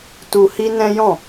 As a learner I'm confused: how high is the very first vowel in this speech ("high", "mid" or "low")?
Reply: high